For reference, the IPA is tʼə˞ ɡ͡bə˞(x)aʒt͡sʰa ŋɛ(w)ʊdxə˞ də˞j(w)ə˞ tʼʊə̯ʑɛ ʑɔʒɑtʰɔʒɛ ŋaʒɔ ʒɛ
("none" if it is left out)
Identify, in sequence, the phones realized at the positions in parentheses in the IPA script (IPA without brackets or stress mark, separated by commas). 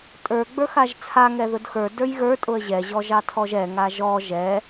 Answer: x, ð, ɣ